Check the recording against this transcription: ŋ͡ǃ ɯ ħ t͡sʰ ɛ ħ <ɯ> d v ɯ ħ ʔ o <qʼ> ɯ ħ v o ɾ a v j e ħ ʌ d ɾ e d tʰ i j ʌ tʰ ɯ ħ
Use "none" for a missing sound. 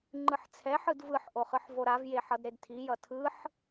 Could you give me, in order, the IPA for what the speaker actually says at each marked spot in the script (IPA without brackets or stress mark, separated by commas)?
ɯ, χ